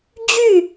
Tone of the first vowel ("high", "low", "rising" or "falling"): falling